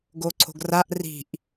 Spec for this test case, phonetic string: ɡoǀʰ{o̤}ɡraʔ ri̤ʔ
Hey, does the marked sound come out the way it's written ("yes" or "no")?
yes